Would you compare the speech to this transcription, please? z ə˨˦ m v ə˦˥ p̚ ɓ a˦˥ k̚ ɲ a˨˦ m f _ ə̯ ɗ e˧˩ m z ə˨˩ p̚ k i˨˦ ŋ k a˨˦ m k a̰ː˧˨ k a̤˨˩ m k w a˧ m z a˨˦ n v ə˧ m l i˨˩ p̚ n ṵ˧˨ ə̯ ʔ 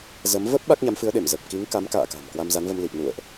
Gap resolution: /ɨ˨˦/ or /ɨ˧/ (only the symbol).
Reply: ɨ˨˦